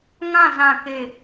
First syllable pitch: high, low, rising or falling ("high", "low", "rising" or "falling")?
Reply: falling